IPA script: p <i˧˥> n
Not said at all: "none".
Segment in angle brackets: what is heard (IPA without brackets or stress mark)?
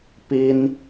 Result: i˥